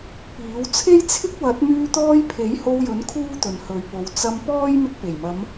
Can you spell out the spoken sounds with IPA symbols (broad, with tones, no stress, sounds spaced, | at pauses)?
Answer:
p iː˨˥ w t͡sʰ e˥ j t͡sʰ ɪ˥ k̚ w ɐ˨˥ t̚ m yː˧ t̪ ɔː˧ j pʰ e˨˥ j h o˧ w j ɵ˨˥ n kʰ uː˥ t̪ ɵ˨ n h ɵ˨˧ ɥ p o˨˧ w t͡s ɐ˧ m p ɔː˥ j m ɪ˧ k̚ p e˨˩ j m ɐ˨˧ m